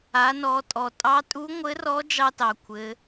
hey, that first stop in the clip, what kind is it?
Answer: ejective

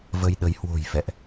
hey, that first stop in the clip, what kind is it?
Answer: implosive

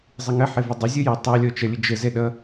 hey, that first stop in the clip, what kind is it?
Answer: plain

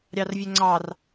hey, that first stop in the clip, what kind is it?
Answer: click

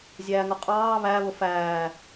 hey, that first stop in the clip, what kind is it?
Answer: ejective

